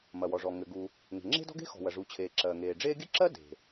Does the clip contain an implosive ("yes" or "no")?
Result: no